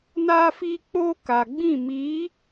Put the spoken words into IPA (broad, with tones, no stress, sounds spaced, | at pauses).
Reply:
n aː˦ f iː˦ k͡p oː˦ k a˨ ɡ͡b ĩ˦˨ m iː˨˦